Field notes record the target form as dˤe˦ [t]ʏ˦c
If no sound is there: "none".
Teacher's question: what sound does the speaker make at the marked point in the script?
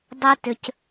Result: t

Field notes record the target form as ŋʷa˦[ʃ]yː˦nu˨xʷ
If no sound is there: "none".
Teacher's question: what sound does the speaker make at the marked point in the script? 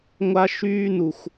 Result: ʃ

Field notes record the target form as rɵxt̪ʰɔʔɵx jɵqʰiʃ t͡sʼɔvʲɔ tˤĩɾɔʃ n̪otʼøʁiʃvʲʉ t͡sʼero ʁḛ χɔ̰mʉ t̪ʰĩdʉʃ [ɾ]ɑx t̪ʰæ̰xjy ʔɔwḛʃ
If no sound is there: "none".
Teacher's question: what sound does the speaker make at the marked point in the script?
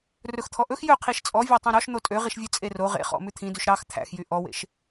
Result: ɾ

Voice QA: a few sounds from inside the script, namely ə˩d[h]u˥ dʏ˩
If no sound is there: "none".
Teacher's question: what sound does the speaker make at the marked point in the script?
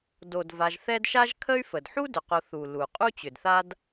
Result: ħ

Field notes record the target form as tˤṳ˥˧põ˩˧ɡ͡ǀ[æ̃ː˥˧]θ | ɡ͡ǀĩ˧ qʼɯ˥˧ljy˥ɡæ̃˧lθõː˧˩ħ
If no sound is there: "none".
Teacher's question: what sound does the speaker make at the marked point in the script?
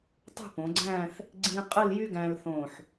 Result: æ̃ː˥˧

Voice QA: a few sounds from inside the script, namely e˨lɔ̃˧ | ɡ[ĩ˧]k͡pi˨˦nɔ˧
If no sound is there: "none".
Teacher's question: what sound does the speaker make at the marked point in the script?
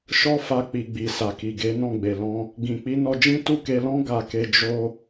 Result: ĩ˨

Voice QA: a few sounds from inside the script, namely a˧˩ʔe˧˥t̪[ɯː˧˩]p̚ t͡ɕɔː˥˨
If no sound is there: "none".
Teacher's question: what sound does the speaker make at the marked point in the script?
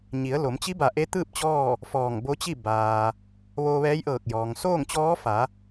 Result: ɯː˥˨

